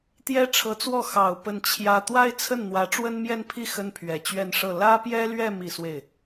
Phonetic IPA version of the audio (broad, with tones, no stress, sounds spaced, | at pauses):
t̪ j ɛ˥ ʈ͡ʂʰ ɤ˧˥ t͡s w ɔ˥˩ x ɑ˨˩ ʊ̯ p ə˥˩ n t͡ɕʰ j ä˥ t̪ w a˥ ɪ̯ t͡sʰ ə˥˩ n n̪ w ä˧˥ ʈ͡ʂ w ə˥ n m j ɛ˥˧ n pʰ i˥˩ x ə˥ n pʰ ɥ ɛ˨˩ t͡ɕ ɥ ɛ˥˧ n ʂ ɤ˥˩ l ä˥ p j ɛ˥ l ɥ ɛ˥˧ m i˥˧ s w e˥˩ ɪ̯